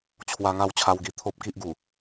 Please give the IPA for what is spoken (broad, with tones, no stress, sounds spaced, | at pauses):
t͡ɕʰ w a˧ ŋ a˥˧ w t͡ɕʰ a˧ w ɡ i˧ t̪ʰ o˦ p̚ k i˦ ʔ ɡ u˨˩